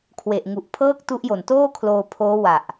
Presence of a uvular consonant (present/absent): absent